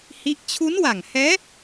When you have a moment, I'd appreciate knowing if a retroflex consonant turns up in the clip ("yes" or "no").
no